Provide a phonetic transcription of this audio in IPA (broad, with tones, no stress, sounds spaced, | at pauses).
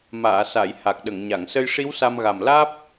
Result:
m aː˨˩˨ s a˨˩˨ j h a˨˩ k̚ ɗ ə˨˩˨ ŋ ɲ a˨˩˨ ŋ s ə˧ j ʂ i˧˥ w s a˧ m ɣ a˨˩ m l aː˦˥ p̚